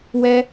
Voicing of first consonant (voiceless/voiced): voiced